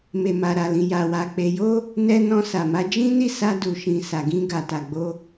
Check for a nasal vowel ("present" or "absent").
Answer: present